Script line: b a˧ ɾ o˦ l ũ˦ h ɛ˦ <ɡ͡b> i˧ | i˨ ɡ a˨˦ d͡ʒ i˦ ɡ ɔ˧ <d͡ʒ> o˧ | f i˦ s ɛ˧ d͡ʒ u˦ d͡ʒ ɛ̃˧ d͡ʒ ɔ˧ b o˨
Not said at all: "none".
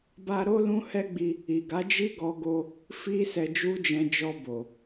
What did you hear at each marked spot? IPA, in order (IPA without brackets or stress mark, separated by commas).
ɡ͡b, ɡ